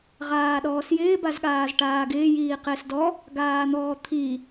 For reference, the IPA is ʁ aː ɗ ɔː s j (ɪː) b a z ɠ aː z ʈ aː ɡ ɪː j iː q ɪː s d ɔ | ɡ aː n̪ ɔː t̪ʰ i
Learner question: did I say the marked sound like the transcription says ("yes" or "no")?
yes